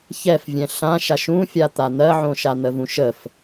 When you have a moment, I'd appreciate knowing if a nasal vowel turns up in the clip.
yes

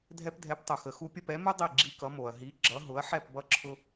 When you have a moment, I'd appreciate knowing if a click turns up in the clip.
yes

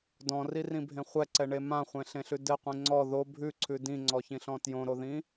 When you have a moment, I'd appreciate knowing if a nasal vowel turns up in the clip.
yes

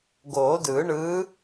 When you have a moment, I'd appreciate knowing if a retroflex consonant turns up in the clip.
yes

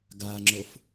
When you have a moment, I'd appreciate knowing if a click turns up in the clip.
yes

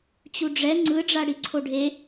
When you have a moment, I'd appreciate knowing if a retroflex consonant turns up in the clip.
yes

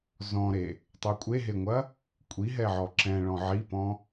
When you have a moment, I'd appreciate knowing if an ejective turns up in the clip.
yes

